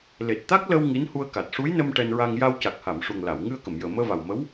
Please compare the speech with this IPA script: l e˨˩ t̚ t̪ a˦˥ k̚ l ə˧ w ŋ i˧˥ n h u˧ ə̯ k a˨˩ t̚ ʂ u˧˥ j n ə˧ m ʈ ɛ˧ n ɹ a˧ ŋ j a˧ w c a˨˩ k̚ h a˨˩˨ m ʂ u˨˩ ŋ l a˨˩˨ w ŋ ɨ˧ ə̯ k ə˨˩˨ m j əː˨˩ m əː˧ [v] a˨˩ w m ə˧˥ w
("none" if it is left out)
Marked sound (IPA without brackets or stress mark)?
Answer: v